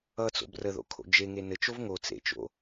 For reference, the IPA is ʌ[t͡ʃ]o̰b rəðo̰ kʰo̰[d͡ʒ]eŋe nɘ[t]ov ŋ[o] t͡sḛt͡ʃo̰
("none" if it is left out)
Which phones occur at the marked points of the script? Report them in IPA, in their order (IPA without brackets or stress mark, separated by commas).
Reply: t͡s, d͡ʒ, t͡ʃ, o